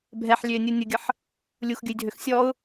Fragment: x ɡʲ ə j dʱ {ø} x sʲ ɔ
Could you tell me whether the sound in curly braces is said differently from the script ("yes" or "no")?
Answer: no